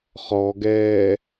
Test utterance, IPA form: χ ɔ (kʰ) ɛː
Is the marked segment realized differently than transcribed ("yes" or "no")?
yes